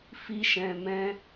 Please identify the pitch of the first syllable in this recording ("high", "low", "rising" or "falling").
high